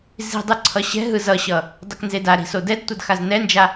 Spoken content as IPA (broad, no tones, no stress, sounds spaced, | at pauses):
z i̤ dˤ ɯ ǀʰ ʌ ɕ ɛ̤ ɦ ɯ z ʌ ɕ ʌ | dˤ ɯ k n z e d a ɾ i̤ s o d ɛ d tʷ ʌ d x a z n ɛ n d͡ʒ a